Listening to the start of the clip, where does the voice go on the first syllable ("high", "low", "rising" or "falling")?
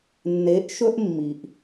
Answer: rising